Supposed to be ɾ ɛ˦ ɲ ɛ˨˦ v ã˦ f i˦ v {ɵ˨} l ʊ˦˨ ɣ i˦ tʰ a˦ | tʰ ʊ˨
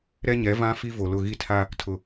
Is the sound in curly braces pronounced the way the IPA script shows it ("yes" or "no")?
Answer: no